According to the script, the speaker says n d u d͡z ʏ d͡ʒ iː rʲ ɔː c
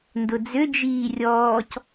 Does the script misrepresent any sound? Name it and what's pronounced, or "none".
u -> ʊ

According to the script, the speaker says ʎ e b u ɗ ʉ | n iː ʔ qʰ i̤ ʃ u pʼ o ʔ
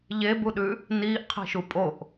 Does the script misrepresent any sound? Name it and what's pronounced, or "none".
none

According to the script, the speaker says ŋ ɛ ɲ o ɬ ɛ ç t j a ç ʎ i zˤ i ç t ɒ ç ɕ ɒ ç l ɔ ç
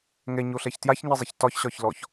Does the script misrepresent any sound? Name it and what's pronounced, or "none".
ʎ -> ɲ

